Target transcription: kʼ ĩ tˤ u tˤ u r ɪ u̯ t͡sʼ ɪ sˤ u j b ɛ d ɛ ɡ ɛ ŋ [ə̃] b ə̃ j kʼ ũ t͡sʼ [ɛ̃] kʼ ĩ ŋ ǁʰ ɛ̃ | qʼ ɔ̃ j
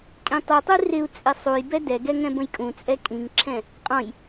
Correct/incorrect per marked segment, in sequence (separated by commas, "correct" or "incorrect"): incorrect, incorrect